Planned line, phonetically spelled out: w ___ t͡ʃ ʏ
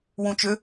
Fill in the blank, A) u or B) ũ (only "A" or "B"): B